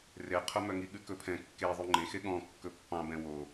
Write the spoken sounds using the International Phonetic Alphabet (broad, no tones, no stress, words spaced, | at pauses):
reqʰɵmœŋi ɠʉkɵpʰɛ̃ kːe ðˤyŋ͡ǃẽxe ɠɔ̃ kːɵpːɑ̃bɛ̃ wo